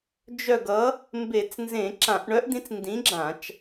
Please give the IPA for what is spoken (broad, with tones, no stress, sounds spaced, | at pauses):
d͡ʒ œ˦˨ ɡ ʌ˨˥ | m b e˧˩˧ t͡s n z ẽ˧˩˧ ǁ ã˧˩˧ ʔ ɳ œ˨˥ ʔ d̪ ĩ˨˥ t͡s n d ĩ˨˥ ɡ͡ǁ ã˧˩˧ t͡ʃ